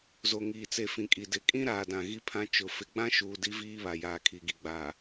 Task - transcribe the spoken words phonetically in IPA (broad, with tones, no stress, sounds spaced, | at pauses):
z o˨ ŋ iː˨ t͡s e˨ f ĩ˨ kʼ i˨ d ɪ˨ kʼ ĩ˦ ɾ aː˨ d ã˨ ɣ i˦ pʰ ã˦ t͡ʃ ʊ˨ f ɪ˨ ɡ͡b ã˦ ʃ uː˨ d i˦ v iː˦ β a˨ j aː˨ kʰ i˨ ɡ i˨ ɡ͡b a˨